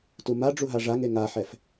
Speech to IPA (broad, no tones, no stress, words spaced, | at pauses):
tumaɖ͡ʐu ɦaʐaŋe ŋaħɛf